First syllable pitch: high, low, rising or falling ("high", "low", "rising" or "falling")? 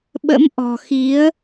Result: rising